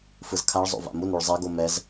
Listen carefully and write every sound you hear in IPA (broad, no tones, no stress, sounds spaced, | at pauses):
f ɯ z kʰ a ɭ zˤ o̰ v a̰ m u n ɾ u ɭ zˤ ɛ ɡ o m ɛ z